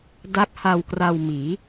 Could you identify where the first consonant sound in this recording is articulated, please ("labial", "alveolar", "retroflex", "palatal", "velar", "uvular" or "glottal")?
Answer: alveolar